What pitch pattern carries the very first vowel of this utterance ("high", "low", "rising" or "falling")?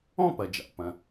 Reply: falling